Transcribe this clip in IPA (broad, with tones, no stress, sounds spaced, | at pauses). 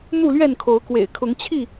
n̪ u˥˨ l ɥ ɛ˥˨ n kʰ o˨˦ ʊ̯ k w ḛ˨˩ ɪ̯ kʰ ʊ˨˦ ŋ t͡ɕʰ i˥˨